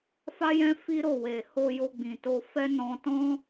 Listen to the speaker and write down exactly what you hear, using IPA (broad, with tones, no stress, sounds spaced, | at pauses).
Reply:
f a˦ j ɛ̃˦ f i˦ ɾ o˦˨ w e˨ h o˧ j o˧ ɡ͡b ĩ˨ t o˧ f ɛ˦ n ɔ̃˧ t ɔ̃˦